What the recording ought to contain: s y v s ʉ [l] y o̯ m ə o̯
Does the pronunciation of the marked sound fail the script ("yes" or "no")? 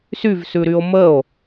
yes